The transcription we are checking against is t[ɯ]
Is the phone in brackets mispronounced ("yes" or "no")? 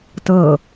yes